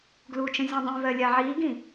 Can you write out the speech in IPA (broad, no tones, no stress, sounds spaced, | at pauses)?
ɡ l u t͡ʃ ə̃ zʲ ũ dˤ ĩ v ɜ lʲ a ʕ i ɡ ĩ